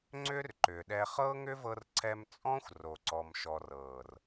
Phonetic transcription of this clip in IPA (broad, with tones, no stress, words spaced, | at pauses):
ŋ͡ǀʏː˦rǃʏː˨ɗɛ˧ χɤː˦ŋʏ˦vɤ˧rǀʰɛ˧m t͡sʼɔ̃˦xʷ ro˨ǀɔ˨mʃɔ˨rɤː˨r